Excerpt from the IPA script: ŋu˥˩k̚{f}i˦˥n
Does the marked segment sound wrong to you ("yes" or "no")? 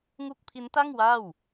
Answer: yes